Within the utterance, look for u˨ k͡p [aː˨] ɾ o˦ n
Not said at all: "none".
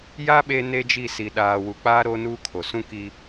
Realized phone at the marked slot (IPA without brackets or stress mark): aː˦